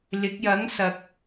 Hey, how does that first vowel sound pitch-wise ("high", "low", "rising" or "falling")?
rising